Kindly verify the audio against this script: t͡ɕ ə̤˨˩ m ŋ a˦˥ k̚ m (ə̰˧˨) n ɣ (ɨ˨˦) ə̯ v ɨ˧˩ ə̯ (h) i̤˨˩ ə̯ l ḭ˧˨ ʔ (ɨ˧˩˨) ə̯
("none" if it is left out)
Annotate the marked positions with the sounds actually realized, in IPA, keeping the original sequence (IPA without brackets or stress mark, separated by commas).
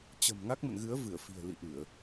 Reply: ə̰˧˨, ɨ˨˦, f, ɨ˧˩˨